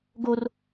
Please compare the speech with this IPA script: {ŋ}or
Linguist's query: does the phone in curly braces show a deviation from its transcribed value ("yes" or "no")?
yes